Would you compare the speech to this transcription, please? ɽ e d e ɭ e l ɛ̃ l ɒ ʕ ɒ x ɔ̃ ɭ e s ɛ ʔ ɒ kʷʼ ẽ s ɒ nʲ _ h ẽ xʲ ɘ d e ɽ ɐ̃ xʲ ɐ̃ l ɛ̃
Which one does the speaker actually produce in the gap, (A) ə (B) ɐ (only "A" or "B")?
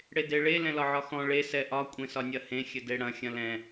B